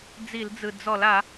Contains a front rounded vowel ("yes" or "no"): no